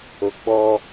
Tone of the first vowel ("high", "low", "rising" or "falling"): low